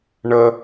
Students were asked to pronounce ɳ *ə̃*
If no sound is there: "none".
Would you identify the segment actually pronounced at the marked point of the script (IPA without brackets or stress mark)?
ə